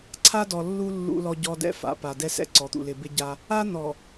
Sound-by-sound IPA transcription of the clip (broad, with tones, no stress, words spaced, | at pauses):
ǀʰa˦dɔ˨lːu˦ lːṵ˦lɔ˦ɟɔ˦ dɛ̰˦fa̰˨ pa˨ dɛ˦sɛ̰˦ǀɔ˨˦t̪ṵ˨ lɪ˨bɪ˦ɟa˦ | a˦n̪ɔ˨